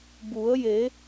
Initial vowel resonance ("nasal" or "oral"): oral